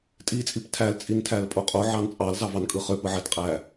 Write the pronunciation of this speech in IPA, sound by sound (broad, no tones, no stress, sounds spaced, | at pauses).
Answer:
tʼ i t͡sʼ i p tʰ æ l t͡sʼ i n tʰ æ l pʼ o qʼ o ʕ ɑ n t͡sʼ ɑ l z ɑ v ɑ n kʼ ɯ χ ø p ɯ ʕ æ t qʼ æ